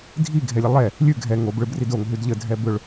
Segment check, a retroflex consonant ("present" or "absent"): present